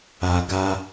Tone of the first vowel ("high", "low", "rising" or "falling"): low